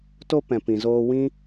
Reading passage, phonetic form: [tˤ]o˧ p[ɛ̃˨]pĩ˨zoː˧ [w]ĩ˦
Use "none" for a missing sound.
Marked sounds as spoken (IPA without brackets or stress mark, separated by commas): t, ɛ̃˨, w